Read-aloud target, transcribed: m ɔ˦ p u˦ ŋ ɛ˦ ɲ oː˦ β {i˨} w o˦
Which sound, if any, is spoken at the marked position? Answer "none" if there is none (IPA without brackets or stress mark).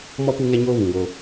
ĩ˨